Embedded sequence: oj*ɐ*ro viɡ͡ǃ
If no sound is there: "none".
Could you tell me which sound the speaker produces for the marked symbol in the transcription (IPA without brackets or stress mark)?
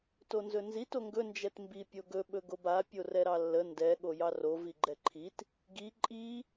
ɑ